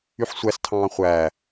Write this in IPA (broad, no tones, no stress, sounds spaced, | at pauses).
y ħ sʷ æ s tʰ ɑ̃ː χʷ æ